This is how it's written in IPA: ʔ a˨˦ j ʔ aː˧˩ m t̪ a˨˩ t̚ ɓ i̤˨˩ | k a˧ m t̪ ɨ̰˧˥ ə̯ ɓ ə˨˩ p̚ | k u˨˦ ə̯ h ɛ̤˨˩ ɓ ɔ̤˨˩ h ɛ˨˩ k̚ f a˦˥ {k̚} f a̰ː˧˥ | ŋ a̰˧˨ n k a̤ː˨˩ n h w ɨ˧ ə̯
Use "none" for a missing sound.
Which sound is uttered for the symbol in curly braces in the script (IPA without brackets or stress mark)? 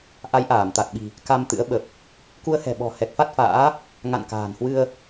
t̚